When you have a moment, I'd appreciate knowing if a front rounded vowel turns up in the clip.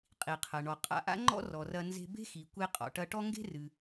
no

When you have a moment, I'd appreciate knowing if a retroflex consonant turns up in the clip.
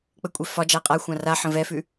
no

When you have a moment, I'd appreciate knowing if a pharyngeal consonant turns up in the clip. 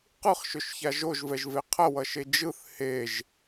no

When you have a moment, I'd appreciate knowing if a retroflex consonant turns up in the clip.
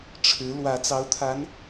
yes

